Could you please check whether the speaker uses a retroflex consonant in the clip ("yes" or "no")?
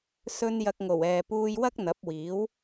no